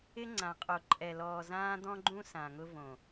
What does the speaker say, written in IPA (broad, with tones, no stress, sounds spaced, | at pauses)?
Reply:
ɪ˦ ŋ͡ǀ ã˨ qʼ o˨ ǃʼ ɛ˨ l ɔː˨ z ãː˦ d̪ ɔ̃˦ ɡ͡ǃ ũ˦ s ã˨ ŋ ʊ˦ v õ˨